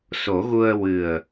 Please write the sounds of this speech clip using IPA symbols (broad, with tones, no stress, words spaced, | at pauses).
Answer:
so˨˩˦ɣu˧ə̯ wɨ˨˩ə̯